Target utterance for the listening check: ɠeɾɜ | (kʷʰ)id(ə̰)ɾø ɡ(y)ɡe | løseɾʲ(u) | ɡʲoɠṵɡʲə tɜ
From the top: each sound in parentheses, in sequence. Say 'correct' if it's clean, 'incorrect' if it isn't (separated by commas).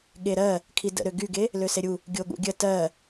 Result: incorrect, correct, correct, correct